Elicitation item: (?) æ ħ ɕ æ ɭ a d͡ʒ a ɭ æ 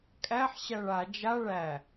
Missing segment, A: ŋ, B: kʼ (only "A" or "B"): B